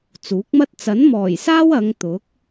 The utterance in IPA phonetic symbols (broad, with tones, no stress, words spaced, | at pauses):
t͡suː˨˥k̚mɐ˥t̚ t͡sɐ˨˥nmɔː˨˩jsaː˥w ɐ˨˧ŋ t̪ʊ˨˥k̚